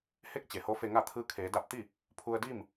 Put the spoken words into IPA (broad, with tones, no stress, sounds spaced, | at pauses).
h e˥˨ k̚ t͡ɕ e˩˧ h o˧˥ f e˧ ŋ a˥˨ t̪ʰ ɯː˧ kʰ eː˩˧ d a˧ p̚ t̪ i˥˨ | pʰ u˧ ə̯ d i˥˨ m